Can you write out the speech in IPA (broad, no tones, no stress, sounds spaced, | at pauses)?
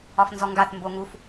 ɒ f n z ɔ ŋ ɡ a θ m b o ŋ u f